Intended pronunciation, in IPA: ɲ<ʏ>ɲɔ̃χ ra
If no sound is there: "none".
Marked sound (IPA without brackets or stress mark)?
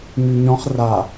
y